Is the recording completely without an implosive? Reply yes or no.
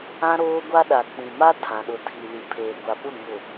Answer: no